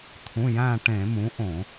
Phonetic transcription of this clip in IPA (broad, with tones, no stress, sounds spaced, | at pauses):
t̪ʰ ũ˩˧˩ j æ̃ː˧˩ ʈ ẽ˧˩˧ m ũ˩˥ ʔ õ˧˩˧